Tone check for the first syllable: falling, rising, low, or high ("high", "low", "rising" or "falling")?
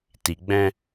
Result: low